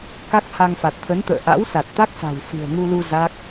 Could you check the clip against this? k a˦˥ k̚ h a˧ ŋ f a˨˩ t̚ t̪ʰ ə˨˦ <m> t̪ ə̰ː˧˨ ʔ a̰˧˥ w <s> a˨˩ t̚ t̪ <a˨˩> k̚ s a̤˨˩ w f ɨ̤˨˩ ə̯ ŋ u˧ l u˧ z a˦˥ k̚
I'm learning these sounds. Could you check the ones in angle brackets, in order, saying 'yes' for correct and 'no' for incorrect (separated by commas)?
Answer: no, yes, no